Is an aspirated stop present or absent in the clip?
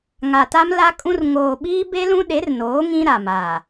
absent